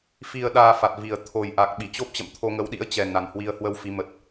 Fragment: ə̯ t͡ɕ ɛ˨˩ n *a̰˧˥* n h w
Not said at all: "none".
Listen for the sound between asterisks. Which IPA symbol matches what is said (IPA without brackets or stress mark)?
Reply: a˨˩